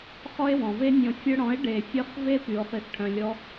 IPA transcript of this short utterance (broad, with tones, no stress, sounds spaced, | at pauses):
χ ɔ˦ e̯ w ɔ̃˨ v e˦ nʲ ɔ̃˨ fʲ œ˧ ɽ ɔ̃˨˦ e̯ ɖ e˨ fʲ œ˧ χ v e˦ p y˨ o̯ χ i˨ θ ʈʰ œ̃˨ lʲ ɔ˧